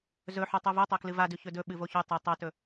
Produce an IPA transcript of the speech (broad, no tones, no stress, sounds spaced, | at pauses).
z ɵ ħ u tˤ u v u tˤ o k l ɨ v a d ʉ ç ɵ d ɵ ɓ ɨ v o ç ʉ tˤ ɨ tˤ o t ɵ